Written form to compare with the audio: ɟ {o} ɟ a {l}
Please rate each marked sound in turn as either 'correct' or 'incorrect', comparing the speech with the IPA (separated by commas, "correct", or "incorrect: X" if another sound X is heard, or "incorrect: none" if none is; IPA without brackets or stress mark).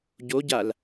correct, correct